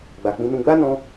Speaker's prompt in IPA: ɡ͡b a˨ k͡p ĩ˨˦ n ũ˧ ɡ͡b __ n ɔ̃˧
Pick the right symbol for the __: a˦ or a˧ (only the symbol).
a˦